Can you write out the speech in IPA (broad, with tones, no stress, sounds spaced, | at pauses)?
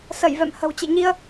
s ə˧˩ j v ɛ̰˧˨ m h ə̤˨˩ w t͡ɕ ḛ˧˨ ɲ i˧ ə̯